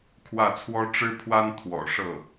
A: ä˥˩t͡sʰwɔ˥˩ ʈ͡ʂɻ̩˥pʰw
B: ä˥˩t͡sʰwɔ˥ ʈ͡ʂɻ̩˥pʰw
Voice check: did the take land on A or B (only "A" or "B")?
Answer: B